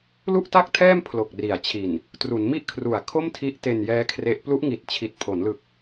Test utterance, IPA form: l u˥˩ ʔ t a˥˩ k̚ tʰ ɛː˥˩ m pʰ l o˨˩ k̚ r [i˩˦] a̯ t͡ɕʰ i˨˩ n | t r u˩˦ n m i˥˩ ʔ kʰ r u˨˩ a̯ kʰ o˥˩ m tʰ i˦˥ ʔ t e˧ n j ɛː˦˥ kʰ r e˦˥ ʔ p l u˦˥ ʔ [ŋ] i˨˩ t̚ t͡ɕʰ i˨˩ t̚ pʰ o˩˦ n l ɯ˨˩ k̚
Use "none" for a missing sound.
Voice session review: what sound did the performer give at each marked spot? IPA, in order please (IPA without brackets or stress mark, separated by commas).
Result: i˩˦, ŋ